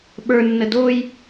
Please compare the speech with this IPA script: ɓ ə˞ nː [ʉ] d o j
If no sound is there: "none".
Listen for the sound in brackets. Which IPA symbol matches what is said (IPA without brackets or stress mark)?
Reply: ə